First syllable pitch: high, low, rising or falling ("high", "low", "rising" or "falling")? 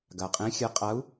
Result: low